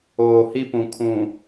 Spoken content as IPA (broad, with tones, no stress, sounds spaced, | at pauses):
oː˨ h i˦ p ũ˨ kʰ ũ˨